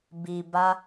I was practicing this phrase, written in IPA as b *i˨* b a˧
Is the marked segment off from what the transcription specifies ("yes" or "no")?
no